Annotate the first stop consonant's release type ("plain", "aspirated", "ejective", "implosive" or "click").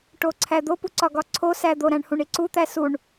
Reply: plain